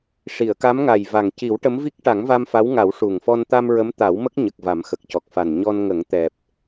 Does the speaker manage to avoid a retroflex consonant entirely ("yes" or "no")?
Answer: no